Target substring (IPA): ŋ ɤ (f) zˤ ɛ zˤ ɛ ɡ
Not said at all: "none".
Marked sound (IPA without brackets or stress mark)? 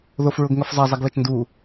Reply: f